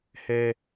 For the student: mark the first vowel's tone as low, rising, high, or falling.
high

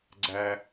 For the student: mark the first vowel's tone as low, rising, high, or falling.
high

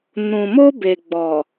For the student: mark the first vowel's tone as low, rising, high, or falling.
low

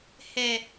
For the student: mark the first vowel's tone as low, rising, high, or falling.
low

